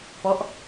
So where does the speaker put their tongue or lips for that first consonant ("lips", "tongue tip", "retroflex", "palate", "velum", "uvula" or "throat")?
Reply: lips